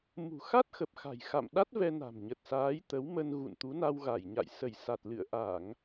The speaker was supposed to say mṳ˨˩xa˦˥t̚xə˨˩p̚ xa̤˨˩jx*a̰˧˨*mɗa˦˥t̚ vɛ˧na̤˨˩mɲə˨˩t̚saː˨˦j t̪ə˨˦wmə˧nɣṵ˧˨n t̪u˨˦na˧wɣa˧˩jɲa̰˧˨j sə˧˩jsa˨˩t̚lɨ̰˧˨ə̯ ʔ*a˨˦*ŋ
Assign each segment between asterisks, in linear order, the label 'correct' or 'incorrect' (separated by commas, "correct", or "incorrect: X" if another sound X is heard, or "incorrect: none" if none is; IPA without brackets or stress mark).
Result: correct, incorrect: a˧˩˨